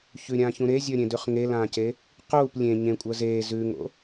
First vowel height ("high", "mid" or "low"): high